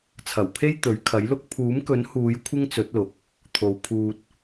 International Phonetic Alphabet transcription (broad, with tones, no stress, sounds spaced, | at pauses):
t͡sʰ ɐ˨˩ w pʰ e˥ j t̪ ɵ˨˥ ɥ kʰ ɐ˨˥ j l ʊ˥ k̚ pʰ uː˨˥ m k ɵ˨˥ n h uː˨˧ j kʷʰ ɪ˥ ŋ t͡s ɵ˨˥ t̚ l ʊ˨ k̚ | t̪ʰ o˨˧ w pʰ uː˧ t̚